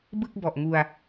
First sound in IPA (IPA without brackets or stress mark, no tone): b